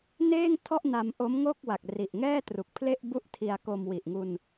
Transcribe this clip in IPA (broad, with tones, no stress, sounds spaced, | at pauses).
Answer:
n eː˥˩ ŋ tʰ ɔ˥˩ ʔ n a˧ m ʔ o˦˥ m ŋ o˥˩ k̚ w a˨˩ k̚ r i˨˩ ʔ ŋ ɛː˥˩ t r u˨˩ k̚ pʰ l e˥˩ ʔ b u˥˩ ʔ tʰ i˧ a̯ k o˧ m w i˨˩ ʔ ŋ u˧ n